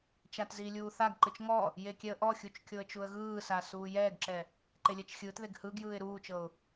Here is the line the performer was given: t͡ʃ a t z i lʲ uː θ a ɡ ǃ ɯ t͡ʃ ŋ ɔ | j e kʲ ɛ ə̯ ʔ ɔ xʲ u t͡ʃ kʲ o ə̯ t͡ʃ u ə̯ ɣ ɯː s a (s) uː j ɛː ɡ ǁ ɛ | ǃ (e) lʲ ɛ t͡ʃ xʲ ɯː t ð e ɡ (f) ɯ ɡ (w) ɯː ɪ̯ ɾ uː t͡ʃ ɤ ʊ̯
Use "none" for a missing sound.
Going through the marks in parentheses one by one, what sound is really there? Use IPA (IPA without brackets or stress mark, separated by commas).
s, e, h, j